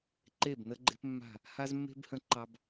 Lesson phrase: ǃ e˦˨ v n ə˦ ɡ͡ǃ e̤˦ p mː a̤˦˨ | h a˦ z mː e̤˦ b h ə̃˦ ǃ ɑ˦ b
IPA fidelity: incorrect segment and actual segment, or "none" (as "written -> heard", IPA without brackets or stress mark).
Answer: v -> b